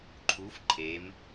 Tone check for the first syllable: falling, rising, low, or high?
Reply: rising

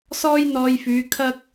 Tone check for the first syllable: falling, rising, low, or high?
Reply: high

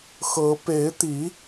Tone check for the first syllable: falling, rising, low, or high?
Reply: rising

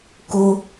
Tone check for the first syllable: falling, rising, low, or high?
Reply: high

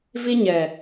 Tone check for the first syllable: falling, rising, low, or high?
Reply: high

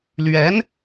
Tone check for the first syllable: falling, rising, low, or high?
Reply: rising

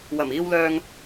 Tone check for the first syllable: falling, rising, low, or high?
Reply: low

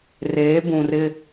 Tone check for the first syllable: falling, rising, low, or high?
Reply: rising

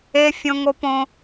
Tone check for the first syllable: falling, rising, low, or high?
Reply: high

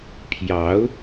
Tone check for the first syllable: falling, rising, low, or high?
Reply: rising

